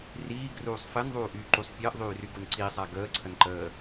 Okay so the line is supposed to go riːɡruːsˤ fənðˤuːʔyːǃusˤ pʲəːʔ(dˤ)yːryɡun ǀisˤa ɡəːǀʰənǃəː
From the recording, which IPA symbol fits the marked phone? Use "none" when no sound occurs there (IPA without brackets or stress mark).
ðˤ